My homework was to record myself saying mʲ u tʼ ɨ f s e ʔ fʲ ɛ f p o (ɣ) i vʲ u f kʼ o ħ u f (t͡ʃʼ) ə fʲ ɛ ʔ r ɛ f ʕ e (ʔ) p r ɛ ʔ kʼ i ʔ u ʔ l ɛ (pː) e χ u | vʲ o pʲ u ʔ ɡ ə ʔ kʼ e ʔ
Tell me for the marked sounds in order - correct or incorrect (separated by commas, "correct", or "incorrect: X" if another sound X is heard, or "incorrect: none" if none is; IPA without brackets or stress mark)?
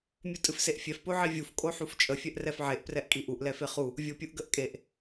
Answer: incorrect: ʕ, correct, correct, incorrect: f